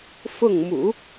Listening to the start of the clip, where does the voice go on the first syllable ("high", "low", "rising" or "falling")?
falling